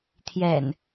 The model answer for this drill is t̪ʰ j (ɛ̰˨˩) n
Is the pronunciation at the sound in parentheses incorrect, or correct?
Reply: correct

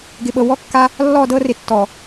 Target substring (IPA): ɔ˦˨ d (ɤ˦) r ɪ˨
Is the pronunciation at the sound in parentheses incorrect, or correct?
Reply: correct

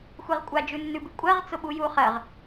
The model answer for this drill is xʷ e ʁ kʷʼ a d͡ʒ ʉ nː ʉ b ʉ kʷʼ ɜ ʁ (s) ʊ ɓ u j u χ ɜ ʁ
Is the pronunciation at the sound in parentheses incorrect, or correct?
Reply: incorrect: t͡s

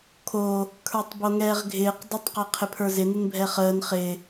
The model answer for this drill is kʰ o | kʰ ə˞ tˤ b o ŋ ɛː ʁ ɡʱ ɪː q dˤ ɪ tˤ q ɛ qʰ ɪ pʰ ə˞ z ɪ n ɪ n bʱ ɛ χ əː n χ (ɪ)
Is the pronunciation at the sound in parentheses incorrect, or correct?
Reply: correct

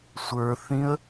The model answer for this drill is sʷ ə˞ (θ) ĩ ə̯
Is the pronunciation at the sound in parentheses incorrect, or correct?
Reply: correct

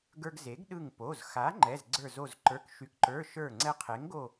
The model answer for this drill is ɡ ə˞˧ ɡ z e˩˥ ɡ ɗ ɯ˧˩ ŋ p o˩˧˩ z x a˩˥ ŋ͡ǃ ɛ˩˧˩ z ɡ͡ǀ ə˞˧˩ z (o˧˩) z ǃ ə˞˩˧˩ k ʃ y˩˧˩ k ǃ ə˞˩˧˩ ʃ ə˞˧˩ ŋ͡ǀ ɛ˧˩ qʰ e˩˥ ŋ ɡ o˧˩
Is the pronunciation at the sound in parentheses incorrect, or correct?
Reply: correct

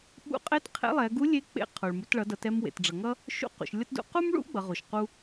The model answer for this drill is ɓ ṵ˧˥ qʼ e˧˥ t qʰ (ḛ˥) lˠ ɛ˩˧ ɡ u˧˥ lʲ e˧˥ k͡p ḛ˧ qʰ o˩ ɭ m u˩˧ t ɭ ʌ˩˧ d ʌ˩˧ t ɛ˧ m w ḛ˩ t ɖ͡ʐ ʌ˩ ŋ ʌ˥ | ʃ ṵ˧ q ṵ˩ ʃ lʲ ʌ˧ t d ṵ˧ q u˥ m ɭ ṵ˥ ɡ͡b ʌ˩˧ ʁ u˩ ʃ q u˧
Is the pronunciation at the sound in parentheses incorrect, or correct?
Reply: incorrect: ḛ˧˥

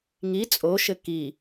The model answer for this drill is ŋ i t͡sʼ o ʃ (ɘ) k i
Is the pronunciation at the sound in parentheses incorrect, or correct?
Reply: correct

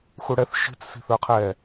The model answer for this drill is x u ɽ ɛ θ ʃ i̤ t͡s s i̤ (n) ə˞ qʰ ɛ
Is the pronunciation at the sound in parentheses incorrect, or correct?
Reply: incorrect: θ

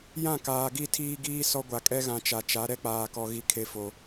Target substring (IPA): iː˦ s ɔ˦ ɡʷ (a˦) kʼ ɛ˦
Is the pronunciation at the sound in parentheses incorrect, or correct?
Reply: incorrect: a˨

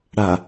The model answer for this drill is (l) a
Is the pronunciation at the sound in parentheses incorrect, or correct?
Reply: incorrect: ɽ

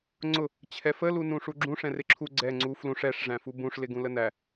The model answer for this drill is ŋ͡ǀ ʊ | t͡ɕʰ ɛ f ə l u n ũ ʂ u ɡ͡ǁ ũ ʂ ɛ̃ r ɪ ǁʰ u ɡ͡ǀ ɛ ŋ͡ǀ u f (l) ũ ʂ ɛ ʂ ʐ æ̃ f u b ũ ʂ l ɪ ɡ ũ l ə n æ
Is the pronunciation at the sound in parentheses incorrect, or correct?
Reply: correct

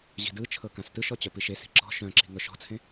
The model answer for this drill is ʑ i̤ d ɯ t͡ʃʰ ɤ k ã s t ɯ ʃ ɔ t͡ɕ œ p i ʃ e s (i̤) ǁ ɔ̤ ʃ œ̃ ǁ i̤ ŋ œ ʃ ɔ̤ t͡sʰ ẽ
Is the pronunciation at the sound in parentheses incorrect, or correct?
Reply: correct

